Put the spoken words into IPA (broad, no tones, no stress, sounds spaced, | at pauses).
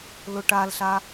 l ʊ ʈ a l ɬ a